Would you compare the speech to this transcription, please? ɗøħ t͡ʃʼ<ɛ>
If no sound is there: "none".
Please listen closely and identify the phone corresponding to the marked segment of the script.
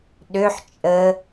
ə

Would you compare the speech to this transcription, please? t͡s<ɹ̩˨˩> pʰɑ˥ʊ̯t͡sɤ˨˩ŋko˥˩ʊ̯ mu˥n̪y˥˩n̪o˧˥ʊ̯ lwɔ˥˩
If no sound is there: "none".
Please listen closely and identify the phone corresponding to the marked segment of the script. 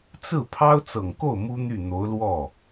ɹ̩˥˩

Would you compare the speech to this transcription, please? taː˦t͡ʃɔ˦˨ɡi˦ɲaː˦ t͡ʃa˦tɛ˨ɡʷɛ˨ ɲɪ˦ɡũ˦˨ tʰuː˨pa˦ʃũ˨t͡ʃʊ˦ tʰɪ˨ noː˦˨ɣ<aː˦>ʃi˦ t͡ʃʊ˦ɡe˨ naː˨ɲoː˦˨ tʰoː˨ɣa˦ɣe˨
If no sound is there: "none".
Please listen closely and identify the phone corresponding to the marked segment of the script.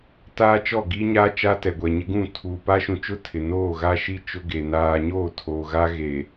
a˦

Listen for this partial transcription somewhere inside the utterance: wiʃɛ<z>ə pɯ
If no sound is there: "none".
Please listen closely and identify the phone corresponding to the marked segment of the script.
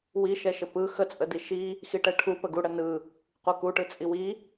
ʃ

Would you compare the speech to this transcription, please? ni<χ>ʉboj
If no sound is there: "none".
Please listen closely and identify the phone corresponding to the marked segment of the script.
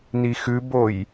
x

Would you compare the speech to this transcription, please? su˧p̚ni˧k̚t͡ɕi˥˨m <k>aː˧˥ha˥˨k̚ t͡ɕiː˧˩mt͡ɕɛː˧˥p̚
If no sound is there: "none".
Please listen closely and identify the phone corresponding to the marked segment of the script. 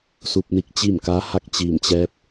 k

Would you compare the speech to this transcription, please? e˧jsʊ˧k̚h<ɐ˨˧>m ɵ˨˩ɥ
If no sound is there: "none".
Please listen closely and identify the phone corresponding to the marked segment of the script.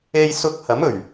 ɐ˨˥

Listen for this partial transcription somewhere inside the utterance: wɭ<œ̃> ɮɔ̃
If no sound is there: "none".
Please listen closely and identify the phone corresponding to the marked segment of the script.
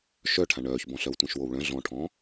œ̃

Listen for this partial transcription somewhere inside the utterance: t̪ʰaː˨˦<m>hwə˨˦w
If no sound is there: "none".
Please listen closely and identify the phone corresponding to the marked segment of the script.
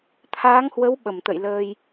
ŋ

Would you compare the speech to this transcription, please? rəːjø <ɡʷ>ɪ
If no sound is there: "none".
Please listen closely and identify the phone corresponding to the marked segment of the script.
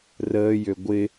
ɡʷ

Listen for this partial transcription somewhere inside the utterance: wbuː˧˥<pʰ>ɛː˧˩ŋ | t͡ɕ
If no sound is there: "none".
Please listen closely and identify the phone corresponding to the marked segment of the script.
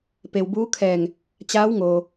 kʰ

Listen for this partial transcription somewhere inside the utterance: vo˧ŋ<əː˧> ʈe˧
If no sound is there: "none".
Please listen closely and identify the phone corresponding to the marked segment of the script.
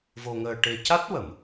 əː˧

